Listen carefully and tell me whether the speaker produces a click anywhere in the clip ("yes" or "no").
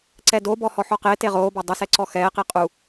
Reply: yes